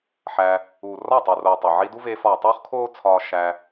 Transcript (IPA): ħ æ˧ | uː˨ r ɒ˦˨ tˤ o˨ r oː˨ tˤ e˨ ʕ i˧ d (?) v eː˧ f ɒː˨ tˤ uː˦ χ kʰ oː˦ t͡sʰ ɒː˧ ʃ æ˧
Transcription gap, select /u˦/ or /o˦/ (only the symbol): u˦